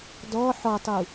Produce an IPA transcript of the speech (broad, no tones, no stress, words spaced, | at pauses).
dɔ ħɔtˤu